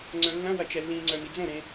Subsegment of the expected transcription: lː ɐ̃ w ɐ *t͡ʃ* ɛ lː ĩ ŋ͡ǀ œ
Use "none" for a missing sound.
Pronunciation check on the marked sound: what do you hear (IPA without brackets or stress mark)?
t͡ʃ